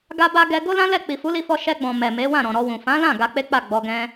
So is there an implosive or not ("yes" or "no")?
no